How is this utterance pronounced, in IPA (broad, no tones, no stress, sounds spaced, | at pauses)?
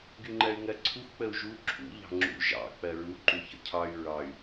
ɡ y ŋ͡ǃ ɜ y̯ ŋ ɜ ǀʰ u x k͡p ə u̯ ʒ u ǁʰ ṵ ʎ ɑ̤ ŋ͡ǁ ṵ ʒ ɑ̰ k͡p ɜ ɹ u ǃ u ç ə̰ cʰ ɑ y̯ ɹ ɑ y̯